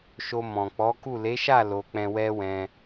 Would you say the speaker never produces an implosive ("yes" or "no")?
yes